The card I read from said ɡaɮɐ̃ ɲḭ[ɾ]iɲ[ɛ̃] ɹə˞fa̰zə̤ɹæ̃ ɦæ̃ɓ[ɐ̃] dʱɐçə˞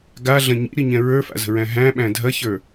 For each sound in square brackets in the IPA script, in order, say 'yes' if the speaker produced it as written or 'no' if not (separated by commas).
yes, yes, no